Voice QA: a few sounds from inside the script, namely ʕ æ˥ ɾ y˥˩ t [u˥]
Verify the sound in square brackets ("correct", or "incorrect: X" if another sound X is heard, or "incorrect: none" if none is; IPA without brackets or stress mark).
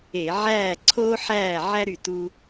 correct